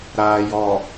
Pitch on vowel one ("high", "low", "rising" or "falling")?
low